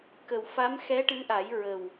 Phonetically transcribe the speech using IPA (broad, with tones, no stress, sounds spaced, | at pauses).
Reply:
k ə˨˩ w f a˧˥ m x ɛ˧˥ ʈ ɨ˧˥ ʔ a˨˩˦ j ɹ ə˨˩ w